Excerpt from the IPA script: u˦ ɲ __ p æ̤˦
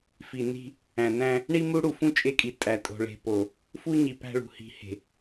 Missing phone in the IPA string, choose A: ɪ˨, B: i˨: B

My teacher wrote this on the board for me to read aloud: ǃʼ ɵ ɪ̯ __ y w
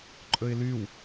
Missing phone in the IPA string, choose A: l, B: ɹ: A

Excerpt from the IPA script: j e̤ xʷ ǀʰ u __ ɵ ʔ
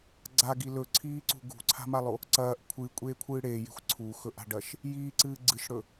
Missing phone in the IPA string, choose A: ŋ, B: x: B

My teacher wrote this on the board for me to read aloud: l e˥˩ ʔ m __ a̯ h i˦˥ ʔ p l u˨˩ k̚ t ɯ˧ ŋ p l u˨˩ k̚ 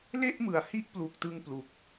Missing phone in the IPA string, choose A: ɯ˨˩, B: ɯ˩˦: B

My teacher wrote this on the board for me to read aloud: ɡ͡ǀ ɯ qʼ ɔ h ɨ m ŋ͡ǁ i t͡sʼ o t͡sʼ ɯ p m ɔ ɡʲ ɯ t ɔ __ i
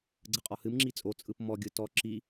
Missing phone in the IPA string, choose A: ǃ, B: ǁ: B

